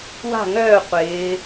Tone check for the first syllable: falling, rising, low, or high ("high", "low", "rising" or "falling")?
falling